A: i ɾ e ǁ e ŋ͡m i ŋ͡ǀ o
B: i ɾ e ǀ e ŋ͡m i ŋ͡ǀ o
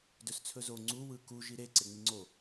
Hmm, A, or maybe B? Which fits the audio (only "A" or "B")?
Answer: B